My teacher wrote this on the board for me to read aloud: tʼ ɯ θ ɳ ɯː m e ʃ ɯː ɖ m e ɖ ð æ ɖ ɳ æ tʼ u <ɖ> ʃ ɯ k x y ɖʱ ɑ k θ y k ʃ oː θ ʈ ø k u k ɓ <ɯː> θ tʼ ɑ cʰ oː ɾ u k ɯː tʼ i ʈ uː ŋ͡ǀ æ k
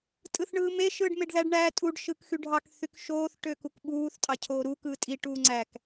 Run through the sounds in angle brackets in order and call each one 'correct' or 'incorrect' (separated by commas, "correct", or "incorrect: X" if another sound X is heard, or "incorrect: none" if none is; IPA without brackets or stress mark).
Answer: correct, incorrect: uː